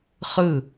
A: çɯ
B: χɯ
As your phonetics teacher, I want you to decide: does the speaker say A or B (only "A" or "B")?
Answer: B